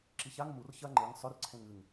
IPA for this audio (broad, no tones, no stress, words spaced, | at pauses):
ǁiçaŋ mur çɐ ŋ͡ǃɨŋ sˤɵrǀʰẽŋ ɨŋ